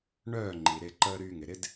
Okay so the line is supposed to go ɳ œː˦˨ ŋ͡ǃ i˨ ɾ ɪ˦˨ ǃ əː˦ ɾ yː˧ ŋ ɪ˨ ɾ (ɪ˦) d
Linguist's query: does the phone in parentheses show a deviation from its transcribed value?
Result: no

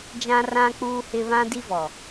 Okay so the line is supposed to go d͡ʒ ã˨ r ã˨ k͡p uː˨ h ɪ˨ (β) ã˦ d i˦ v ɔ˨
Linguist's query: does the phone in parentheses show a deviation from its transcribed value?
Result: no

